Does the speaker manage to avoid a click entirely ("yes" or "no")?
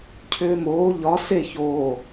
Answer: yes